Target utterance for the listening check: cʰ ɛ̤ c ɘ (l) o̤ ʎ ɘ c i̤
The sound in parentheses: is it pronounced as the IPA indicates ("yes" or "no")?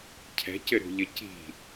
no